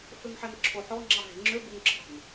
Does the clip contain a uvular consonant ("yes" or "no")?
no